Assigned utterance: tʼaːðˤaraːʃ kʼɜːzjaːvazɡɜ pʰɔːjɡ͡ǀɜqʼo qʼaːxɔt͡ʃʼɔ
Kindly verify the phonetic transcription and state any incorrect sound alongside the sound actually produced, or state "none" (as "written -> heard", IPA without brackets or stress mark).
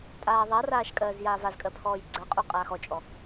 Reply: ɡ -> kʼ